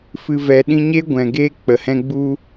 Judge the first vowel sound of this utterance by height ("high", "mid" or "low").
high